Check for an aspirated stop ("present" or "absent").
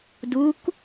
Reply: absent